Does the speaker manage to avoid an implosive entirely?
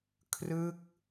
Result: yes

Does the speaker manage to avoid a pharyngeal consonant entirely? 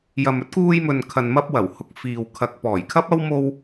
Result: yes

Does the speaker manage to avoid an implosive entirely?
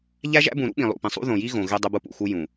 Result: no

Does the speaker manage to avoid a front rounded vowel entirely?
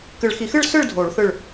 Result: yes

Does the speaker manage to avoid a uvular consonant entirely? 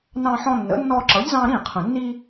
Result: no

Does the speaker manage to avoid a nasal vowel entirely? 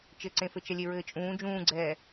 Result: no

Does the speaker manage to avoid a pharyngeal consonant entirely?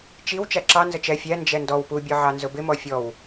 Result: no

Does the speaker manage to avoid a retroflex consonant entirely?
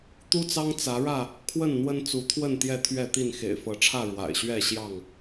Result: no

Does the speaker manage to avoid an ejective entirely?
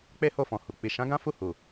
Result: yes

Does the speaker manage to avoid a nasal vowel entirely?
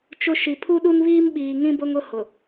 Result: no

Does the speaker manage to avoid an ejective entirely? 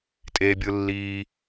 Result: no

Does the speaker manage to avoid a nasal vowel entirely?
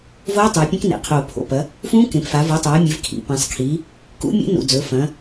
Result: no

